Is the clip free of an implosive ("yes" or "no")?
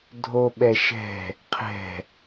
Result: no